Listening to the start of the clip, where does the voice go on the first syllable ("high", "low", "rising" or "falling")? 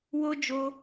high